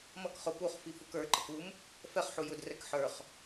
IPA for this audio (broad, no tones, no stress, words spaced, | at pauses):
mʌk χʊ puχ fifukə˞ǃək um | fɛχħu jʊdrɛk ħə˞χ